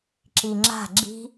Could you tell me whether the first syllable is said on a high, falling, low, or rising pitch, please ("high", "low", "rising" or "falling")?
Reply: low